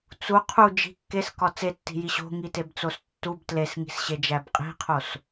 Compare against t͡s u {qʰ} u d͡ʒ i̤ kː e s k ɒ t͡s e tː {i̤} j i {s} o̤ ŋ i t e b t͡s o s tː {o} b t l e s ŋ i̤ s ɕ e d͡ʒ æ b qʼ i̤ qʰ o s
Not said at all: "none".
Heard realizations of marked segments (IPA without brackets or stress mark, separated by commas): qʰ, i̤, ɕ, u